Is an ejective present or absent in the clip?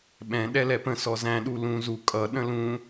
present